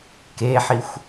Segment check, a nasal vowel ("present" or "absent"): absent